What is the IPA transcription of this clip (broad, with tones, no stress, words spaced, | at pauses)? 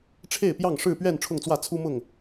ʈ͡ʂʰe˥˨ɪ̯pjɑ˥˨ŋ ʂɻ̩˥˨pɥɛ˥˨n ʈ͡ʂʰʊ˥˨ŋt͡swä˥˨ t͡sʰu˦mʊ˥˨ŋ